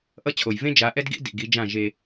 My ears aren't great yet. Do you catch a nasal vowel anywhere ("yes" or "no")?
yes